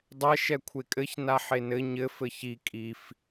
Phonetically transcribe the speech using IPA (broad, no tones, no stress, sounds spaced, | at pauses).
dˤ ɛ ʃ ɛ kʷʰ e kʼ ɘ ç n a ħ e n ɘ ɲ ɘ f ɘ ç i kʼ i f